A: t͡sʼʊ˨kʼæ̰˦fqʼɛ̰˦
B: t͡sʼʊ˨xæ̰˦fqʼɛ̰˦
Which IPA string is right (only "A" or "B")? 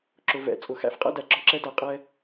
B